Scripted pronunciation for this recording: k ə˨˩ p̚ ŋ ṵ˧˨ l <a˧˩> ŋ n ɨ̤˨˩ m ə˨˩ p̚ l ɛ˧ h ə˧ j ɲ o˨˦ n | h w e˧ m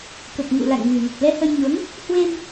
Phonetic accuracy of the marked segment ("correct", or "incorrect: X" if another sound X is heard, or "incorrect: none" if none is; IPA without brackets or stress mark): incorrect: a̰˧˨